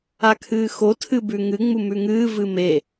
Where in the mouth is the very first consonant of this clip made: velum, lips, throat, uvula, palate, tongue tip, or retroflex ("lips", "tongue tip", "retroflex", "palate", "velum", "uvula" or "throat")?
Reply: velum